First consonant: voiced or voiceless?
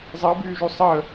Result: voiced